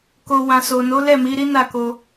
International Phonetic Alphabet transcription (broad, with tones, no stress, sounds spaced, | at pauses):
k o˨ w ã˨ s o˨ n o˨˦ l ɛ˦˨ m i˨˦ ɾ i˦ n a˦˨ k o˧